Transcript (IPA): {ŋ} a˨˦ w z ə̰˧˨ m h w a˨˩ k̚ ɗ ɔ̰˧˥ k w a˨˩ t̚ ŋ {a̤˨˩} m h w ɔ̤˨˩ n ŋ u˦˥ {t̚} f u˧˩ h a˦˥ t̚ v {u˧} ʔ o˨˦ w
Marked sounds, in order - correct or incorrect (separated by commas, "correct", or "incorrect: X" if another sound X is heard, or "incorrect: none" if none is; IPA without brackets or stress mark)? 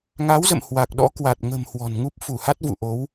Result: correct, incorrect: ə̤˨˩, incorrect: p̚, incorrect: ṵ˧˨